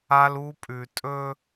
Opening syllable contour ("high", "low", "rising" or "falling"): high